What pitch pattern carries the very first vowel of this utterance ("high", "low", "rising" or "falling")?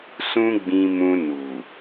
high